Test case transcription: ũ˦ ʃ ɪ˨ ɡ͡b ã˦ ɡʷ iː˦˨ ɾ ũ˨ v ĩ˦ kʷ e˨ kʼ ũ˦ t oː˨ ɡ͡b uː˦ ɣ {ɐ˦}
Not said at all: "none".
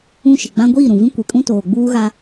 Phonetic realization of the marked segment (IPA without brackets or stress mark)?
a˦